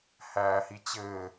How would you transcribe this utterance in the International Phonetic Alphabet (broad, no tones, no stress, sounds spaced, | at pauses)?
h æː h i t͡ɕ ɘː